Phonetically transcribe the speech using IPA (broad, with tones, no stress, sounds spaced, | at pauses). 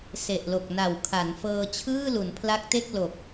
s e˨˩ ʔ l o˨˩ k̚ n a˨˩ w kʰ a˩˦ n f ɤː˧ t͡ɕʰ ɯː˥˩ l u˩˦ n pʰ l a˦˥ k̚ t e˥˩ k̚ l o˨˩ k̚